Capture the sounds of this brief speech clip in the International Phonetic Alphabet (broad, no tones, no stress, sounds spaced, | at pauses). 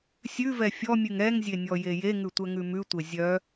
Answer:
sʲ ʉ v ɛ fʲ ɔ mʲ ʉ ŋ ɛ ŋ zʲ e nʲ ɔ j e j e ŋ ʉ tʷ ɛ ŋ ʉ m ʉ tʷ e zʲ œ